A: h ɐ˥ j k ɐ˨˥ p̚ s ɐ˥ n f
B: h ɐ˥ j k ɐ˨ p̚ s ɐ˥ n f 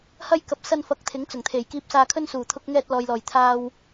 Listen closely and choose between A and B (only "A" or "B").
B